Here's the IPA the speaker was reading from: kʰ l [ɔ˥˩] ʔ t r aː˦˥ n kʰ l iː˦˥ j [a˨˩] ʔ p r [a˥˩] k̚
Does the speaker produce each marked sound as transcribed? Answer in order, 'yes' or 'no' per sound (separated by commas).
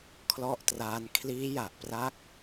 yes, yes, no